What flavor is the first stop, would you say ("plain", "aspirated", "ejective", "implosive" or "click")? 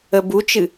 plain